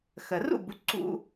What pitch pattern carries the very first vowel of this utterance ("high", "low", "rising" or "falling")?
low